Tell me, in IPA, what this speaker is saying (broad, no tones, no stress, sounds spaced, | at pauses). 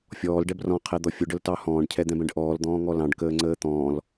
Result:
fʲ ɔː l ɖ ɛ b r ɔ̃ qʰ ɛ d̪ ɔ fʲ ʊ ɖ ə l t ɑ h ɔ̃ː ɖ cʰ ɛ d̪ ɛ̃ b ɛ̃ ɖ ʔ ɔː l d̪ ɔ̃ː ŋ ɔ l ɑ̃ ɖ k əː ŋ͡ǀ əː t̪ ɔ̃ː l